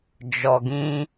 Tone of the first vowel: low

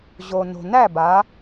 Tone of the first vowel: low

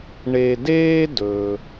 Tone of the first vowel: low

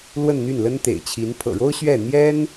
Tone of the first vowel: falling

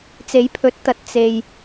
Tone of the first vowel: rising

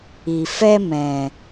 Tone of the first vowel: low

